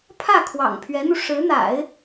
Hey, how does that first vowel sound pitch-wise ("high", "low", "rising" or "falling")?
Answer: falling